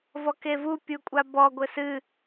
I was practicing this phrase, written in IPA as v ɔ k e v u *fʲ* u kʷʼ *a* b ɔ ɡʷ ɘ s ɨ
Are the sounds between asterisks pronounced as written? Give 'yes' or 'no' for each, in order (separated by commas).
no, yes